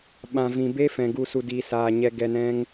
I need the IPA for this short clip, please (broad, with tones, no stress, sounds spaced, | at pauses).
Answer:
ɓ ã˨ v ĩ˨ b e˦ f ɛ̃˨ ɡ u˧ s u˧ d iː˧ s aː˧ ɲ ɛ˧ ɡ ɛ˧ n ɛ̃˦ ŋ